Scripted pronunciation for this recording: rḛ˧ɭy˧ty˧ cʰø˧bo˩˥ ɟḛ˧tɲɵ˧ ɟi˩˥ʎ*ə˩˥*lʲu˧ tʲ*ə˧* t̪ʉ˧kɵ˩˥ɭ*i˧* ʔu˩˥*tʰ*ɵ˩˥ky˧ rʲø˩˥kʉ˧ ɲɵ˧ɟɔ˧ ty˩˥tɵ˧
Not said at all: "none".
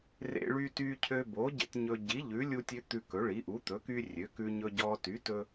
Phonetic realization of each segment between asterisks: ʉ˩˥, ø˧, i˩˥, t̪

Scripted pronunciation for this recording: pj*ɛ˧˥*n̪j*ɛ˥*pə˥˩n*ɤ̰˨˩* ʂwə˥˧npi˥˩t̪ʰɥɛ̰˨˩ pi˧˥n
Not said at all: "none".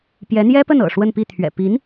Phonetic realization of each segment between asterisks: ɛ˧˥, ɛ˥, ɤ̰˨˩

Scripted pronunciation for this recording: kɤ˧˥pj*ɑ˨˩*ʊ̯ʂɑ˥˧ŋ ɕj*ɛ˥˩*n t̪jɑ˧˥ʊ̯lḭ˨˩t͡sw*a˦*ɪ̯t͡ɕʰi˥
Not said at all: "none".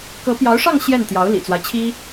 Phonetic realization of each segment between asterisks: ɑ˧˥, ɛ˥˩, a˦

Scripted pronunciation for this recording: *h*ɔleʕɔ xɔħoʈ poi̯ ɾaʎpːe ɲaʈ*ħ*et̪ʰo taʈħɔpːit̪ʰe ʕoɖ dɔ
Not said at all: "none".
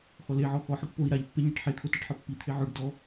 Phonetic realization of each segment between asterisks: x, ħ

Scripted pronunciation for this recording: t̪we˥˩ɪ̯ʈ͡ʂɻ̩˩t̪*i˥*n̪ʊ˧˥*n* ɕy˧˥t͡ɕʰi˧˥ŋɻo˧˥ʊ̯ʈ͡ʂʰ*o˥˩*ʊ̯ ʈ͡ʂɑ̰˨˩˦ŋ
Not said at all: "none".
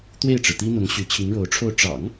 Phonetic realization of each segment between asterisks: i˥, ŋ, o˥˩

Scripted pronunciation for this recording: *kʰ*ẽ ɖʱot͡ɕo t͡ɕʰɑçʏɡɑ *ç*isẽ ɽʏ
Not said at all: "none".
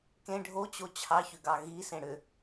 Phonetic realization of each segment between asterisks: k, ɣ

